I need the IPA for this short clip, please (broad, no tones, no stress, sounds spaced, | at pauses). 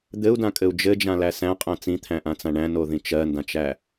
d̪ ɘ u̯ d ã kʼ ɘ u̯ d͡ʒ ɘ d͡ʒ ã l æ s æ̃ qʼ æ̃ t͡s ĩ t̪ʰ æ̃ ʔ ã t͡s ã ɳ æ̃ n o ð ĩ t͡ʃ ɜ n d ã t͡ʃ æ